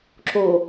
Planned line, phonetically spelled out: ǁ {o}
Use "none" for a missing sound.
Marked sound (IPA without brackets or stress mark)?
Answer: o